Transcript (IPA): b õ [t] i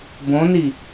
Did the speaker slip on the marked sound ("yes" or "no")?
yes